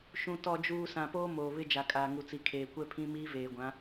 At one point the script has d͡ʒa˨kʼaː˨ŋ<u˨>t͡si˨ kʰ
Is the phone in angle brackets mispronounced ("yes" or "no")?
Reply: no